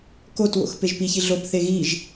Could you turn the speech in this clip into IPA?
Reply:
k o t w o̰ x p e ʒ p i ç i ɮ o p θ e ɣ i ʒ

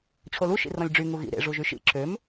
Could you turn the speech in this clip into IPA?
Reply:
t͡ɕʰ o l u ʃ ḭ r ɔ̃ lʲ ɖ͡ʐ y ŋ u ɣ ḭ ɾ ḛ ʐ u ʒ y ʃ ḭ ǁʰ ø m

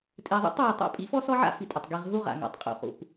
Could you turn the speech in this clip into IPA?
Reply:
tʼ e˨ ðˤ ḭ˦ tˤ w e˨ tˤ a̰˦ pʼ ḭ˦ f ɔ˦ s ɔ˦ ʕ a̰˦ f i˨ tʼ o˨ tˤ ɡ i˨ ʁ ɦ u˦ ʁ a̰˨ ŋ a̰˨ tˤ qʼ ṵ˨ χ ṵ˨ p

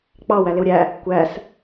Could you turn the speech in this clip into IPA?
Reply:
k͡p ɑ w æ l ɪ w ɾʲ æ | kʷ æ s

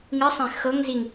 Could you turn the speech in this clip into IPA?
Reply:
ŋ ɨ sˤ ẽ x ɤ ŋ z i ŋ

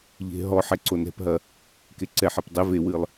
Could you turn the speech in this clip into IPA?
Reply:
ʎ e̤ ɦ ɔ ħ ɛ ǀ o n ɛ̤ p ɦ ɐ | k e ǀ ɛ ħ ɛ p dˤ ɛ v e w ɨ lˠ

